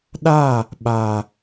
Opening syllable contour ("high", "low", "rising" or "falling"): falling